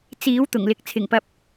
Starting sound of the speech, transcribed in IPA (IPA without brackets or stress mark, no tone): t͡s